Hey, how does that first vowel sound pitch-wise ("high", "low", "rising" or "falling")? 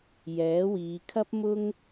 rising